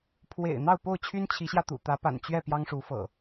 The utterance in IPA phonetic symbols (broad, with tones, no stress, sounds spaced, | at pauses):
pʰ w ḛ˨˩ ɪ̯ n̪ ɑ˥˨ ʊ̯ p o˥˨ ʊ̯ t͡ɕʰ y˦ n t͡ɕʰ i˨˦ ɕ j ä˧ t̪ ṵ˨˩ t̪ ä˨˦ p a̰˨˩ n t͡ɕ ɥ ɛ˥˨ p j ɑ˦ ŋ ʂ u˨˦ f ɤ̰˨˩